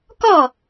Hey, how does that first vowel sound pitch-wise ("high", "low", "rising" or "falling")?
falling